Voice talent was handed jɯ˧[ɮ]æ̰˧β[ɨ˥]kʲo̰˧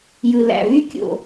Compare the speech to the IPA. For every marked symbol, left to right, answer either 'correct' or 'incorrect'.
incorrect, incorrect

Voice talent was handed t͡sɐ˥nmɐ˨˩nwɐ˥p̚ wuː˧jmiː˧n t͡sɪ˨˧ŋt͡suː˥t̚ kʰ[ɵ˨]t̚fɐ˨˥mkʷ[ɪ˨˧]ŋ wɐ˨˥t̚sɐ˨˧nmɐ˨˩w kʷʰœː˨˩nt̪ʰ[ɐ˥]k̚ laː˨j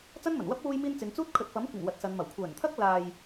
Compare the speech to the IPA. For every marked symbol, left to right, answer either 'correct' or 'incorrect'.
correct, incorrect, correct

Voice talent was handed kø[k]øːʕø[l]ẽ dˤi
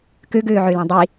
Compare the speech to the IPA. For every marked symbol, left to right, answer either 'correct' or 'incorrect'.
incorrect, correct

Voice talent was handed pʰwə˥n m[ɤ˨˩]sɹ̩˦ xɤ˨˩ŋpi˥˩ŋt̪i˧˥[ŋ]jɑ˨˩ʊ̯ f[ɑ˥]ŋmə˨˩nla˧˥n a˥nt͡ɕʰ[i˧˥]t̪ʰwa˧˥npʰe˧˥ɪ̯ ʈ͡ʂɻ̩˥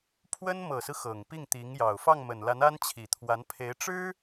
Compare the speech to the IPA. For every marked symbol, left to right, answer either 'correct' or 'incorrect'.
correct, correct, incorrect, incorrect

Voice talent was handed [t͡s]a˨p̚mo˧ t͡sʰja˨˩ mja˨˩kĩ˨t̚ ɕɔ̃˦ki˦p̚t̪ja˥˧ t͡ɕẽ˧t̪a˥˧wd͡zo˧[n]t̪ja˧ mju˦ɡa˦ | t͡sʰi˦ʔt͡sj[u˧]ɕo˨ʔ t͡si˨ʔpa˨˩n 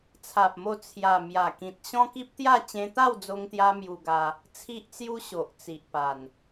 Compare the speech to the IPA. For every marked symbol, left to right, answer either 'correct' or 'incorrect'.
incorrect, incorrect, incorrect

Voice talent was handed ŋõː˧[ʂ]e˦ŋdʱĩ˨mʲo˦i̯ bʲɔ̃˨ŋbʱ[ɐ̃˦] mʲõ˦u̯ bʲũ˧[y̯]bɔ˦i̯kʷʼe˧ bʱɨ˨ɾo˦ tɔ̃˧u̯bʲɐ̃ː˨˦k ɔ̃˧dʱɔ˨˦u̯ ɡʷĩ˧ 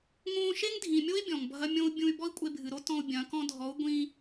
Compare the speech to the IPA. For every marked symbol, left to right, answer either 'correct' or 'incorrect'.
incorrect, incorrect, correct

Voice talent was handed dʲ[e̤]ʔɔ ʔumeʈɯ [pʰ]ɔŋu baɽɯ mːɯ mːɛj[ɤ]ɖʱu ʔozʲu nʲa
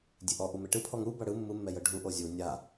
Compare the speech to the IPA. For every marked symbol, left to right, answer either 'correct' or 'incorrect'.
incorrect, correct, correct

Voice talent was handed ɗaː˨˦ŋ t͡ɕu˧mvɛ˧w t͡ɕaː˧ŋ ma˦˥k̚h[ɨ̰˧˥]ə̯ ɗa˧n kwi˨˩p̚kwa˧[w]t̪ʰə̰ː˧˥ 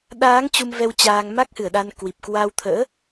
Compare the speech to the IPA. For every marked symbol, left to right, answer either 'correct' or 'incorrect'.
incorrect, correct

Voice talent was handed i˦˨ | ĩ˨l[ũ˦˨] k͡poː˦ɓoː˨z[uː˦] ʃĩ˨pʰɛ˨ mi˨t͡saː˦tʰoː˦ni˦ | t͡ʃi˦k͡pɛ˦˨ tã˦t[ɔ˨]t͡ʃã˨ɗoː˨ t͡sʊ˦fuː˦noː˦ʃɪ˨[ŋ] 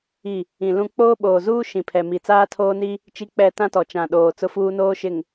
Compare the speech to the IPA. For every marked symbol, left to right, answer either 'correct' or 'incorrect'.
incorrect, correct, correct, correct

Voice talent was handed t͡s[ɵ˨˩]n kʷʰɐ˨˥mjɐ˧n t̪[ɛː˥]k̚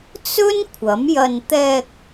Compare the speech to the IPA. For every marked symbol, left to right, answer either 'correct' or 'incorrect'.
incorrect, incorrect

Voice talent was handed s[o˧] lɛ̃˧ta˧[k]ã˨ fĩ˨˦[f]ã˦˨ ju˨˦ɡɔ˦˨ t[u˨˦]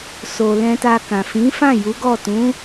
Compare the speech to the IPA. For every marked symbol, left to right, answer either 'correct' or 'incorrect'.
incorrect, correct, correct, incorrect

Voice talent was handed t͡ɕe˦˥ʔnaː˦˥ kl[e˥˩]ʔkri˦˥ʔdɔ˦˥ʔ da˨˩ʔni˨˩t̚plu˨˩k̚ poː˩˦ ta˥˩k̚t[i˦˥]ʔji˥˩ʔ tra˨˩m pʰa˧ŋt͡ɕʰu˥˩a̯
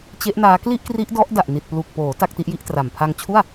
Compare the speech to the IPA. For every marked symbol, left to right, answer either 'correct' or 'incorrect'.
incorrect, correct

